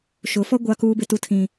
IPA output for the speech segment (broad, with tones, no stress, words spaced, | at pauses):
ʃʊ˨˦fɔ˦ ɡʷa˦kuː˦ bɪ˦tu˦tʰĩ˦